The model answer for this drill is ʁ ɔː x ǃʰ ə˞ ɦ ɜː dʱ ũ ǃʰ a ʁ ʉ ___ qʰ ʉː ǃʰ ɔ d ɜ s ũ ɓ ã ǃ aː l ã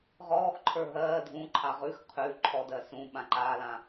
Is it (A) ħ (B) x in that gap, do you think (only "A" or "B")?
B